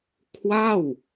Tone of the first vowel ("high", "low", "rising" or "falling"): falling